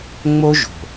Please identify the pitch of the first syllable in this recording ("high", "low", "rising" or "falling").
high